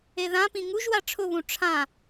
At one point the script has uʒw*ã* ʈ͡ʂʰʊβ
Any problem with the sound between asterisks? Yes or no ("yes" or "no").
yes